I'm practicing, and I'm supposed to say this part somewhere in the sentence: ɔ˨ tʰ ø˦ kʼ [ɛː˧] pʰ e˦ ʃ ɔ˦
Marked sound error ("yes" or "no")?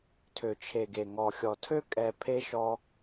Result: yes